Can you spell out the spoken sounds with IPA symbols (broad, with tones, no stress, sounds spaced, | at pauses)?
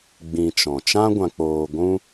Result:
ɡ͡b ĩ˧ t͡ʃ ɔ̃˨ t͡ʃ ã˦ ɡʷ ã˧ k͡p oː˧ ɡʷ ũ˦